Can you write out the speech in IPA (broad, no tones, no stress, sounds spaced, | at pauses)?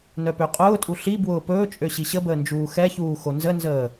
n œ p ø qʼ ʊː tʼ u ɬ i b w ʊː p ɵː t͡ʃʼ ø ɕ i ɕ ə b əː n d͡ʒ uː x ɛ ç uː x o n z ə n z əː